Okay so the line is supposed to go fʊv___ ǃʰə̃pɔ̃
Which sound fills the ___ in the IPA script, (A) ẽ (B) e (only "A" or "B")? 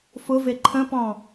B